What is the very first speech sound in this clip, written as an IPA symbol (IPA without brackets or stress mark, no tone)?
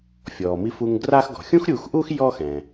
fʲ